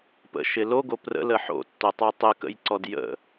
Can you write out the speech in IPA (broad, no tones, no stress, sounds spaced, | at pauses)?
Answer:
p ə̰ ʃ ɪ l o ɡ o p r ə̰ l ə ħ o̰ tː o tˤ o tˤ ɪ k ə̰ j ǀ ɔ d j ə̰